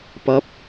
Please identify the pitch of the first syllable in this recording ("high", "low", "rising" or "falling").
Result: rising